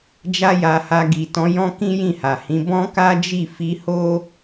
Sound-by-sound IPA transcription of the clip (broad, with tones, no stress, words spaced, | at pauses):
d͡ʒa˦ja˧ha˧ ɡi˨ tɔ̃˨˦jɔ̃˦kĩ˦ jĩ˦˨ha˨hĩ˨˦ bɔ̃˦ka˦d͡ʒi˦˨ fi˧ho˦